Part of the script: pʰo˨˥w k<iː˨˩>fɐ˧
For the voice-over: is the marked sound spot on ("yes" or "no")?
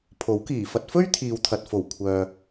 yes